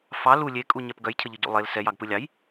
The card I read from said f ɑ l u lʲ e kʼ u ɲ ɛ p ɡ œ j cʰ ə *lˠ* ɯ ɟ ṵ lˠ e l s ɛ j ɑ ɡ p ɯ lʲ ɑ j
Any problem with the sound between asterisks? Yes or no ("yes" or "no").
yes